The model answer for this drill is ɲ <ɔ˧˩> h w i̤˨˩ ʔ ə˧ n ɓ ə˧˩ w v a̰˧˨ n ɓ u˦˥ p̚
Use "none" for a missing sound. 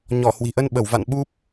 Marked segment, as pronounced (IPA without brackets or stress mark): ɔ˧˩